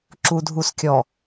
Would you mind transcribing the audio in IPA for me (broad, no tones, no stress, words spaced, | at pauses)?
ǁudʱuskʲɔ